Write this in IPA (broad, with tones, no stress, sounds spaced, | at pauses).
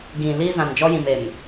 ɡ ĩ˨ l iː˦ z ã˨ n d͡ʒ ɔ˦ j ĩ˨ m e˨ m